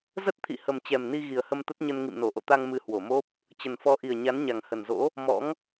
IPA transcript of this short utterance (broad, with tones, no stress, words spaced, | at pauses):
zə˦˥t̚t̪ʰḭ˧˨hə˨˩m t͡ɕɛ˨˩mni˧ ɣi˨˩ə̯hə˧mt̪ə˦˥t̚ɲə˧n ŋḭ˧˨mno˧˩ʔo̰˧˨t̪a˧ŋ mɨ˧hwo˧˩mo˦˥p̚ | t͡ɕə˨˩n fɔ˨˦ʔi˨˩ə̯ ɲa˨˦nɲa˨˩ŋhə˨˩nzo̰˧˥ | mɔ̰˧˥ŋ